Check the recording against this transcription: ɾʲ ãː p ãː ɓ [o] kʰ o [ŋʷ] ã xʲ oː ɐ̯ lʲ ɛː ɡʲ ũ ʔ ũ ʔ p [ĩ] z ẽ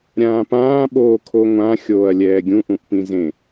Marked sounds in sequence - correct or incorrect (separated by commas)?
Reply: incorrect, correct, correct